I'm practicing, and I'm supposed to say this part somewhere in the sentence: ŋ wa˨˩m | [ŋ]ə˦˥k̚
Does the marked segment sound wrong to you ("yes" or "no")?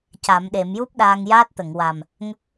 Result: no